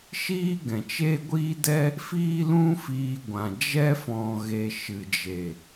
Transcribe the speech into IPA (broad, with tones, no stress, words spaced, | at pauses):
ʃiː˦ɡɛ̃˨t͡ʃe˦ ɡʷiː˦dɛ˦ | fiː˦lũ˦fiː˧ ɡʷã˨ d͡ʒɛ˦fɔ̃˨ɣe˨ ʃɨ˨d͡ʒe˨